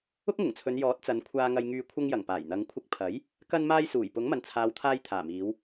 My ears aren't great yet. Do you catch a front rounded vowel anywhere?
yes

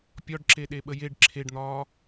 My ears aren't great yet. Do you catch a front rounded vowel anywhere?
no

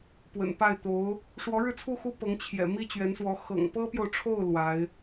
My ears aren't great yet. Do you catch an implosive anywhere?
no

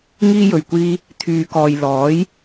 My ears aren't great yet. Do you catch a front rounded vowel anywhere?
yes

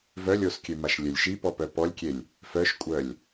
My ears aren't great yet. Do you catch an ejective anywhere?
yes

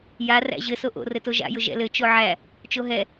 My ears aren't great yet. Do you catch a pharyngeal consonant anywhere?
yes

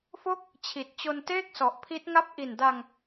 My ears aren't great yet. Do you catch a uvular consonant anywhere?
no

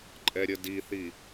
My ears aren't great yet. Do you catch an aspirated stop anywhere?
no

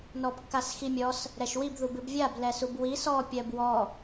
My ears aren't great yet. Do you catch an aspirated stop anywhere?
no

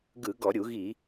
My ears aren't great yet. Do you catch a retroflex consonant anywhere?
no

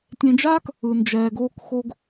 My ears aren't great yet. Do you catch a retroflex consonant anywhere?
no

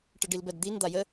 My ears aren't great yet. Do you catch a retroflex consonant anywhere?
yes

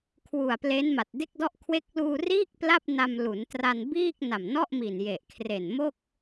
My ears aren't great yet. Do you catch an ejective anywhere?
no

